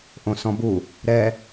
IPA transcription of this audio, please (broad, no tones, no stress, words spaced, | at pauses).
ʔõsɔ̃bu | ɾɛ